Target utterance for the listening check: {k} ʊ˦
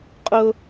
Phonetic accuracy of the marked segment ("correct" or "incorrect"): incorrect